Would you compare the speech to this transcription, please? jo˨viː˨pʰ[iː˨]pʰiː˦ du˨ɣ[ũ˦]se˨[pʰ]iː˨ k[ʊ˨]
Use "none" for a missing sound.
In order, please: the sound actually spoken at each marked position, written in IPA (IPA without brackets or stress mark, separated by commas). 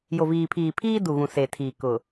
iː˨, ũ˨, tʰ, ʊ˨